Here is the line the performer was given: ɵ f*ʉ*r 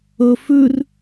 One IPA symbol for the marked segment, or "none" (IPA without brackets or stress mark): ʉ